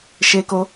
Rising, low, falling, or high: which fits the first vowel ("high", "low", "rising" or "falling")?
high